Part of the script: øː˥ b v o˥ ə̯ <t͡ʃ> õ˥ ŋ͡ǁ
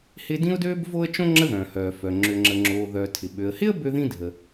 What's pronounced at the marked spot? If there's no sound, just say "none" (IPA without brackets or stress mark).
t͡ʃ